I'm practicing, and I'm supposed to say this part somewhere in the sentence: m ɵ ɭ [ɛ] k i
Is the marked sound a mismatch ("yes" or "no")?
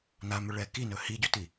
no